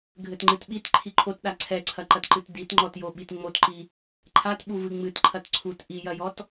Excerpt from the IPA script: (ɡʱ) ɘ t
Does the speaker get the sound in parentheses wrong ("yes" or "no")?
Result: no